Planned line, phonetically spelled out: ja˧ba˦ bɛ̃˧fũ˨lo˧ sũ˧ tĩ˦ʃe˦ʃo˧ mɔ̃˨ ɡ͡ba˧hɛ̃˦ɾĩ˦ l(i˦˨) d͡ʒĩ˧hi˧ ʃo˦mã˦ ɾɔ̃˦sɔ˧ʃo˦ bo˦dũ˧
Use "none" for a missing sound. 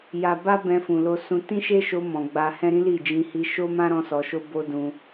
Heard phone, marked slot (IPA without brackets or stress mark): i˦˨